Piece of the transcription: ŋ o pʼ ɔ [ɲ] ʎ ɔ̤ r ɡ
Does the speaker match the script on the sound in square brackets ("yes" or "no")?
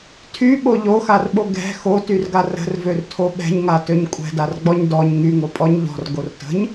yes